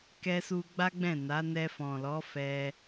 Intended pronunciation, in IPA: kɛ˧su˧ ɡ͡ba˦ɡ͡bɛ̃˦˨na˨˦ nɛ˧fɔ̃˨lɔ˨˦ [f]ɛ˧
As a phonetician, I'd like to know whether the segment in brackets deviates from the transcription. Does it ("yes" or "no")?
no